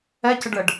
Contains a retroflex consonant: yes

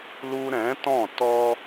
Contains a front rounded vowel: no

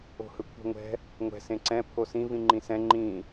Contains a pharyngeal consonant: no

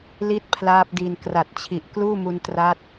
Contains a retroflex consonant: no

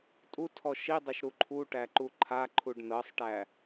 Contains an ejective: yes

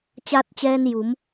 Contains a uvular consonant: no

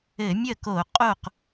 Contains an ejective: yes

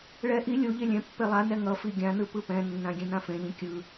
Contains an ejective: no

